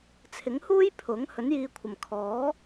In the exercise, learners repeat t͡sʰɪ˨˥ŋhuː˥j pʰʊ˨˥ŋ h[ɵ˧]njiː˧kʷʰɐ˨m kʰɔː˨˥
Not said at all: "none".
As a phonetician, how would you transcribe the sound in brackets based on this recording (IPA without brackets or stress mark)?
ɵ˨˥